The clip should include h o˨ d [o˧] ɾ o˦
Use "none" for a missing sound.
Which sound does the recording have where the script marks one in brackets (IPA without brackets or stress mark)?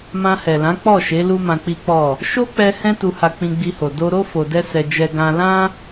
o˧